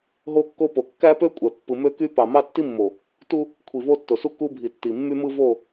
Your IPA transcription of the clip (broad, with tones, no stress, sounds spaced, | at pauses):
ɦ o˦ kː o˦ p o˨ kː æ˦ p ø˦ kʷʼ æ˨ pː ɯ˨ m ø˦ k y˦ p ɑ˨ m ɑ˦ tː i˦ mː o˨ | t u˦ | kʷʰ i˨ v o˦ tː o˨ s u˦ k u˦ bʱ i˨ tː i˨ mː y˦ m ɯ˦ v o˦˨